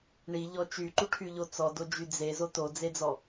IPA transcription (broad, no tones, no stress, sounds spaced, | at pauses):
ɳ i ʎ ɔ t͡ʃ y ǃ u ʈʰ y ʎ o t͡s ɔ d o d͡ʒ y d͡z e z o t o d͡z e d͡z ɔ